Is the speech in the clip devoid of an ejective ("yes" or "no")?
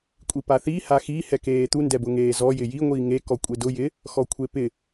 no